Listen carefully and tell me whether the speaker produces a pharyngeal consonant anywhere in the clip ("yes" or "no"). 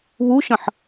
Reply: yes